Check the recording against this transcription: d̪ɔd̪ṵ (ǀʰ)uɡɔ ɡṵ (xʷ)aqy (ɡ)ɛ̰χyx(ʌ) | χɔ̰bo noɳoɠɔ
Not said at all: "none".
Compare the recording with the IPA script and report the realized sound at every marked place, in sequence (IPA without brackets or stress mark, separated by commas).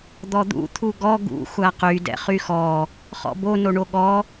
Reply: t̪ʰ, xʷ, d, ɔ